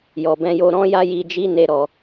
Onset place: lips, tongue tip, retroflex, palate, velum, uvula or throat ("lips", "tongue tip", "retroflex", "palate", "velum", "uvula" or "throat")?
palate